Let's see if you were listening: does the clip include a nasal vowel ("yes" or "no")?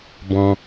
yes